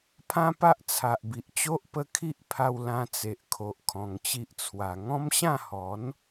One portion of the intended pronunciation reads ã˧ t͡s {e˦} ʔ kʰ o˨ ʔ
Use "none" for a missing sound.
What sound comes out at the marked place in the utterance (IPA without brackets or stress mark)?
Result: e˨